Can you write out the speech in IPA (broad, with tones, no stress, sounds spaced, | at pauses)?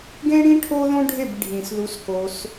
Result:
ɡ ẽ˦ ɽ ĩ˦ ʈʰ o˦ ð õ˦ ɖʱ e˦˨ b ɖʱ ĩ˨ s ð u˧ s k o˧ s